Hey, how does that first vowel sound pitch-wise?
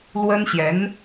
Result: high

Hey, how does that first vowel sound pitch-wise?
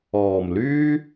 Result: low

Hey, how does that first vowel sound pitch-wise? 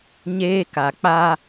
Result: high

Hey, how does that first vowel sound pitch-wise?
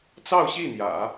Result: falling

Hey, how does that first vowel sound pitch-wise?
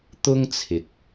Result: high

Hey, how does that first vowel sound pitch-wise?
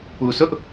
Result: low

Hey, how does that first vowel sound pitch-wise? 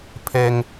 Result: high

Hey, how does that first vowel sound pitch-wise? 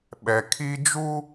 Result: low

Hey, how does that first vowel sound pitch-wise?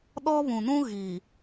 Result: high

